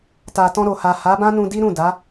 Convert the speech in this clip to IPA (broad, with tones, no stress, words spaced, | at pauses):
ta˨ tɔ̃˧ɾo˨ha˨ ha˨˦bã˦nũ˧ di˦ɾũ˦˨ da˨˦